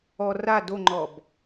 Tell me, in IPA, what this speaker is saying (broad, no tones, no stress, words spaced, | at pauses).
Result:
ɔ ra doŋ͡ǃɔb